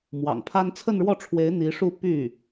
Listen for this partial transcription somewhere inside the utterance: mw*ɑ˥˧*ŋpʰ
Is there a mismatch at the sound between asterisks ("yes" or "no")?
yes